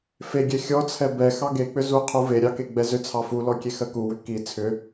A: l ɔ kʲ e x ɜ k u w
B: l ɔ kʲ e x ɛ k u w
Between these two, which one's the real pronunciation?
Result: A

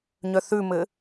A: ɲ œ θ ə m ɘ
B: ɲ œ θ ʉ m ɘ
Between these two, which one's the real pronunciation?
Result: B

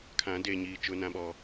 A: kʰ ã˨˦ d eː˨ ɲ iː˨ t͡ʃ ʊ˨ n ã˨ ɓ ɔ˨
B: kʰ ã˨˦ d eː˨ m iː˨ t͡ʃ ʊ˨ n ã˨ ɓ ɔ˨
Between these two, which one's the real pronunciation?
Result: A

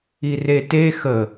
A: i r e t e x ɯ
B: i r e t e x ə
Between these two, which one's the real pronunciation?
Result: B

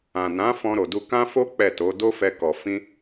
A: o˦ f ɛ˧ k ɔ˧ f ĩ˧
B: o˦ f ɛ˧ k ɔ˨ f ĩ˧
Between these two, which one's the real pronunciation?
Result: B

